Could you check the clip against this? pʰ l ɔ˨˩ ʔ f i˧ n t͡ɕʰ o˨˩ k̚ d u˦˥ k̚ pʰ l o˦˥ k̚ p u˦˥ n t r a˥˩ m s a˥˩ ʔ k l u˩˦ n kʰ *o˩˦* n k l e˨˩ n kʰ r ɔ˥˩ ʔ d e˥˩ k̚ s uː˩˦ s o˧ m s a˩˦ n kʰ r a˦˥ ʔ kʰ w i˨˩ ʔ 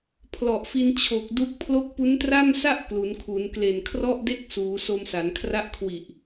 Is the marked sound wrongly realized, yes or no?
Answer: yes